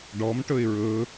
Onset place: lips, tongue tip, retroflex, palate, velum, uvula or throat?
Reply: retroflex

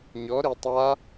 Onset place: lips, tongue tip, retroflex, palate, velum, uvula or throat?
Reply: palate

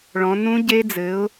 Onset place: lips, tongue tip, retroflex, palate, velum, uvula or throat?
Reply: retroflex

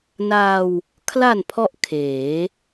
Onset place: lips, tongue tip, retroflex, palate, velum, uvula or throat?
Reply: tongue tip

